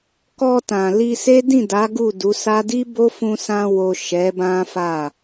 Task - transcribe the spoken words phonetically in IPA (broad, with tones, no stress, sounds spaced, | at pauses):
k ɔ˧ t ã˨ l i˧ s e˦ d ĩ˦˨ d a˨˦ ɡ u˦˨ d u˨˦ s a˦ d i˦ b o˦ f ũ˧ s ã˧ w o˨ ʃ ɛ˨˦ b ã˦ f a˦˨